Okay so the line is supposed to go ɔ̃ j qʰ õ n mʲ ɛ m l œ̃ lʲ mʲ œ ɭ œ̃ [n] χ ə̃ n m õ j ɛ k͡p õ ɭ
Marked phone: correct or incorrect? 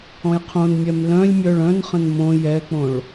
correct